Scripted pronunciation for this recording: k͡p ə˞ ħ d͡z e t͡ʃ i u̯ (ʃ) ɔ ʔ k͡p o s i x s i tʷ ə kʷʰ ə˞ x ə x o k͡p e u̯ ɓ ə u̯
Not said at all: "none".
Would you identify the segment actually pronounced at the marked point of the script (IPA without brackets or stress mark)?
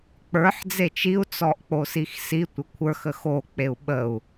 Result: t͡s